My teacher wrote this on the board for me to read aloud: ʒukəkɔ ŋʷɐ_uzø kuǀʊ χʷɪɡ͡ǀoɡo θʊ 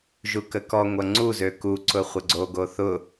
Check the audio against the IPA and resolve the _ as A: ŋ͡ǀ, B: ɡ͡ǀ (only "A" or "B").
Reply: A